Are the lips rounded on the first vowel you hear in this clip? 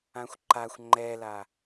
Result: no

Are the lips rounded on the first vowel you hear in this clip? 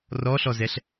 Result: yes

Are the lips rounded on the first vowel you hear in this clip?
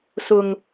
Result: yes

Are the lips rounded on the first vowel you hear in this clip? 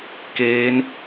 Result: no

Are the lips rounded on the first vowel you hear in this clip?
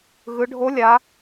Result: no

